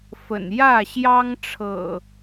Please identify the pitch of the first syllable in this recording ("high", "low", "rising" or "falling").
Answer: low